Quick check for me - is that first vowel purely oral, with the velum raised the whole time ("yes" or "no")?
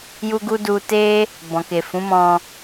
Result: yes